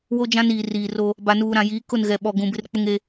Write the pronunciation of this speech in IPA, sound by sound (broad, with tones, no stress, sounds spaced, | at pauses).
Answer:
w o˦ d͡ʒ ã˦ n iː˨ r iː˨ r o˦ | b a˨ n uː˨ ɾ ã˨ j iː˨˦ k ʊ˦˨ n ɣ ɛ˨ ɓ ɔ˨ ɡ ũ˨ b ɪ˦ r k͡p ʊ˦ ŋ e˦